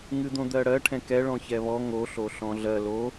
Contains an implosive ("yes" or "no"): no